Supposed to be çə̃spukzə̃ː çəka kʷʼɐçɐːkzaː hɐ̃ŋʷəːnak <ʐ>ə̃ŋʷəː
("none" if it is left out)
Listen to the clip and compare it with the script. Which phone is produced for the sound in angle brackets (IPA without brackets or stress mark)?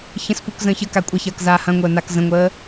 z